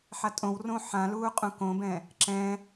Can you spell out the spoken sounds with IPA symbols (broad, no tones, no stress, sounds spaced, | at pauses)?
ħ a tʼ õ w r õ ħ ã l uː qʼ ũ k õ b ɛ̃ | ǁ ɛ̃